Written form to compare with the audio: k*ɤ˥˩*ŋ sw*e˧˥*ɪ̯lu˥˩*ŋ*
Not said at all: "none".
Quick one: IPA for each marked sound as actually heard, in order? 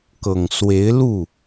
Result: ɤ˨˩, e˧˥, none

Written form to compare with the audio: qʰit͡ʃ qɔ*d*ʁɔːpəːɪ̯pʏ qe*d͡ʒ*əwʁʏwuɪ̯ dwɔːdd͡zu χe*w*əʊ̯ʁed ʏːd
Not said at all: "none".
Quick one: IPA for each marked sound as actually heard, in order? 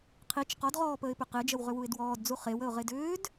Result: d, d͡ʒ, w

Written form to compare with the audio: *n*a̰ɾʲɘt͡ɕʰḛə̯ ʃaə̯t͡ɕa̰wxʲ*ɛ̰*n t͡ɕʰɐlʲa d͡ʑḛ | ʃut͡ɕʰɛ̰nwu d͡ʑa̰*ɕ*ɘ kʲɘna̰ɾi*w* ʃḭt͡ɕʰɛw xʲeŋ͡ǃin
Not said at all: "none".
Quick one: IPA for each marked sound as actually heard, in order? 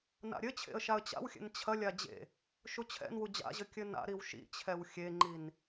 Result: n, ɛ̰, ʑ, w

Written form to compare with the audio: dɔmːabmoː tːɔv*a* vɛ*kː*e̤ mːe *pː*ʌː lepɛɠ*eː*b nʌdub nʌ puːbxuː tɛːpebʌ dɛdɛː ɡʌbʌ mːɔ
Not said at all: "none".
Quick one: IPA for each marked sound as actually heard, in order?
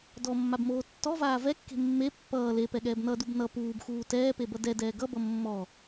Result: aː, kː, pː, ɛː

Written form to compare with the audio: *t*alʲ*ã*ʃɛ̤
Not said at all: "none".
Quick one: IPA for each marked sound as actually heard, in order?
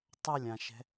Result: tˤ, ã

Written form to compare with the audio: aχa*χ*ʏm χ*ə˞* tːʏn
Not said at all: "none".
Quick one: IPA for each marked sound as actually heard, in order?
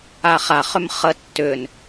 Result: χ, ə

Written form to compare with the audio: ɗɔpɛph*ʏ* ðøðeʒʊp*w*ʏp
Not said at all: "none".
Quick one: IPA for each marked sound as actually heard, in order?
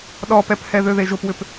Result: ɛ, w

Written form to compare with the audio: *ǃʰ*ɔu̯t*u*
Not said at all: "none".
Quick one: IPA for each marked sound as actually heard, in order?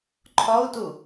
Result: ǃʰ, u

